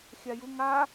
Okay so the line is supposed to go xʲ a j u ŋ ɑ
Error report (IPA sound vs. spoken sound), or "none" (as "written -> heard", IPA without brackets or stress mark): ɑ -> a